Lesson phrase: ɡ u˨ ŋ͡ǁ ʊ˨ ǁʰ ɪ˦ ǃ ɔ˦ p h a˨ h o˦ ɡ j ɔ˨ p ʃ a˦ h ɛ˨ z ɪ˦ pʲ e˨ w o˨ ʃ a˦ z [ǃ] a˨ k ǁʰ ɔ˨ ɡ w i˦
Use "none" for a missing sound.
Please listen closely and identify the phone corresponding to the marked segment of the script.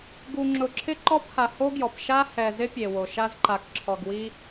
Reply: ǃ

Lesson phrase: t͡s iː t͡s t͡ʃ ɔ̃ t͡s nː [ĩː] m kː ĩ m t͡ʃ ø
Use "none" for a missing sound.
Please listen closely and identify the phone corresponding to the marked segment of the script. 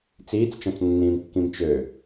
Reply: ĩː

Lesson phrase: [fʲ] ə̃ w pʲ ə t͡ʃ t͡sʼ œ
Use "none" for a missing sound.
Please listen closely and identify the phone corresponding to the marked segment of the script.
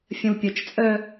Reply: fʲ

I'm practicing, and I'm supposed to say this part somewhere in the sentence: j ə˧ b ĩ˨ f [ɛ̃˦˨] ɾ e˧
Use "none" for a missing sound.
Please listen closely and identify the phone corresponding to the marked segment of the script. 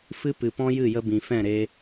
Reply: ɛ̃˦˨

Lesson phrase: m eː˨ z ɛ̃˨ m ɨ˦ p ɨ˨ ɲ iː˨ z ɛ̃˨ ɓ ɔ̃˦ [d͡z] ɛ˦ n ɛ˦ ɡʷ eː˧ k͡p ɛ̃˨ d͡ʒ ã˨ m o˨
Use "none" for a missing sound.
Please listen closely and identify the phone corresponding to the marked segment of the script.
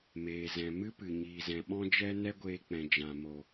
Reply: d͡ʒ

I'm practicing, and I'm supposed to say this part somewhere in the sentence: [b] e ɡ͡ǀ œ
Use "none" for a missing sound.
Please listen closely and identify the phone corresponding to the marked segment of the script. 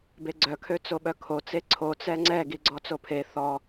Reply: b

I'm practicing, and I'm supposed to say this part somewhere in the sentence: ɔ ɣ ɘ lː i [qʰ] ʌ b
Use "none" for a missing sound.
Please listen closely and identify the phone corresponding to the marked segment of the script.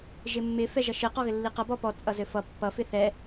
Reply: q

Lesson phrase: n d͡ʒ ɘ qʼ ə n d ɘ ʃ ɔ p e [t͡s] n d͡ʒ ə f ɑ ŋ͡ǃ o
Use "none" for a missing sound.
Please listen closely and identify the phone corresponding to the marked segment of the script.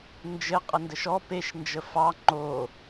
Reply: ʃ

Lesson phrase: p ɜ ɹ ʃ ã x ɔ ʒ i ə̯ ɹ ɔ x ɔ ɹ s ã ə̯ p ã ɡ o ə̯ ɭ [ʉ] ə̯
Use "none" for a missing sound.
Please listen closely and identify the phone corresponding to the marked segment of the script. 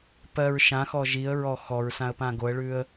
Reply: ʉ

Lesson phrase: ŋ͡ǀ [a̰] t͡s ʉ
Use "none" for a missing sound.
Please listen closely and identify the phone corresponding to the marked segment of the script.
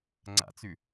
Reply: a̰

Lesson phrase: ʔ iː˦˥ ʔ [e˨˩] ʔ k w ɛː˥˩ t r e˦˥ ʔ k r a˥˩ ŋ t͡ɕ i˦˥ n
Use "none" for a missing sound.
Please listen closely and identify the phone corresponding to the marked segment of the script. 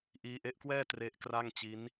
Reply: e˦˥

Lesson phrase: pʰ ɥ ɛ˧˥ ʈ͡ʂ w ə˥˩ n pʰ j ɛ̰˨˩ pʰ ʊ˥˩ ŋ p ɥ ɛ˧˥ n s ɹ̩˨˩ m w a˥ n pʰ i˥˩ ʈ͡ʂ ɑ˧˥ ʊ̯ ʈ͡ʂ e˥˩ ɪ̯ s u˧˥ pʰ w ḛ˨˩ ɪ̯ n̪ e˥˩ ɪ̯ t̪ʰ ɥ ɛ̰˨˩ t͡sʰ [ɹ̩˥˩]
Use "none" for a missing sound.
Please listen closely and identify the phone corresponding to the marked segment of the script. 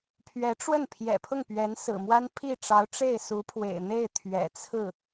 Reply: ɹ̩˥˩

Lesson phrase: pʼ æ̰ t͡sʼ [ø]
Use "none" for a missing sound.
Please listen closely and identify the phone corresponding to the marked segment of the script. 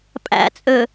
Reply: ø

